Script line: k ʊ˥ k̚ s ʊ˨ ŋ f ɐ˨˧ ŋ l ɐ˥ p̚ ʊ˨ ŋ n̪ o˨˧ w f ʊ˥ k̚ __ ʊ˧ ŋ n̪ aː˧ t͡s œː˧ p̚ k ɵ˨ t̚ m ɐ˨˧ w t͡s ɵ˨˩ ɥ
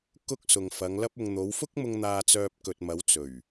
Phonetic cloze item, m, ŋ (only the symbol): m